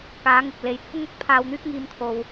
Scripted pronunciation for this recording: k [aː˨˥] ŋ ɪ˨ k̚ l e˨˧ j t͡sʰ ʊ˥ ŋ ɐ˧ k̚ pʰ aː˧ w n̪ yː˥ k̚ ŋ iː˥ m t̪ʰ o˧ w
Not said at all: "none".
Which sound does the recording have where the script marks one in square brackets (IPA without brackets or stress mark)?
aː˨˥